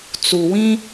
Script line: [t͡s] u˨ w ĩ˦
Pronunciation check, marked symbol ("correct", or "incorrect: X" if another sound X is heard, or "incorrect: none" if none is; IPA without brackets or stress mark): correct